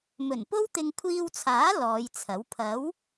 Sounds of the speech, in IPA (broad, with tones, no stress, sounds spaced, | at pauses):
m ɵ˨˩ n p o˥ w t̪ ɪ˧ ŋ kʷʰ iː˧ w t͡sʰ aː˨˥ l ɔː˨˧ j t͡sʰ ɐ˨˥ w pʰ ɐ˨˥ w